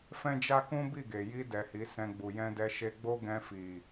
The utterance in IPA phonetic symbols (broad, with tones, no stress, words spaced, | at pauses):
fɛ̃˦d͡ʒa˦kũ˦ bi˦˨ɡe˨ ji˧dɛ˨ hi˨˦sɛ̃˧ ɡ͡bu˨jɛ̃˧dɛ˧ʃe˧ ɡ͡bo˦ɡɛ̃˧fi˨